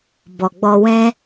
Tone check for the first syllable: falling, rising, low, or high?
low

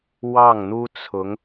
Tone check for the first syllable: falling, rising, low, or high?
falling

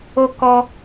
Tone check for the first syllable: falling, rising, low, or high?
high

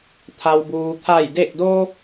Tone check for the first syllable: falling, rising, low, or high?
low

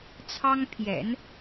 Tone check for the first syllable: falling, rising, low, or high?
high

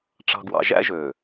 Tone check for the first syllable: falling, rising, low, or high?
low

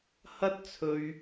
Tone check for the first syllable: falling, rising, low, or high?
high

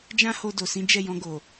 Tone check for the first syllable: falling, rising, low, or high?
high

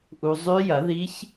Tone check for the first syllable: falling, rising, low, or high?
low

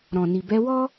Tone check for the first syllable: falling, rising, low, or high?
low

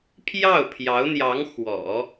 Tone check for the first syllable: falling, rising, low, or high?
falling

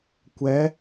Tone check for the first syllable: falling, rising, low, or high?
rising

